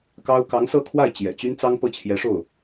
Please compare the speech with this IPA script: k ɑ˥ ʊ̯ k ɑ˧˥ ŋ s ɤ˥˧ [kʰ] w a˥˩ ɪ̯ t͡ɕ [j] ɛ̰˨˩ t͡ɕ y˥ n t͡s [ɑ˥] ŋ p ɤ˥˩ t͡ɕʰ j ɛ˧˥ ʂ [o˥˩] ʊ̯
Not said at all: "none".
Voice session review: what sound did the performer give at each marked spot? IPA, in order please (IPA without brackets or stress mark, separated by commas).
kʰ, j, ɑ˥, o˥˩